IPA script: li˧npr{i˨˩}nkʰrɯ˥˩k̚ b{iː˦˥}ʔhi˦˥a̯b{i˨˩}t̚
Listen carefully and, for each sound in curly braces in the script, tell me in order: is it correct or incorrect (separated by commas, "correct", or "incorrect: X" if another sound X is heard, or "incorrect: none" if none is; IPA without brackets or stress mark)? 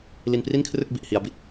incorrect: i˥˩, incorrect: i˦˥, correct